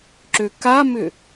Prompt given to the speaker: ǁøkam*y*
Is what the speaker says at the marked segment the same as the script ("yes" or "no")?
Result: no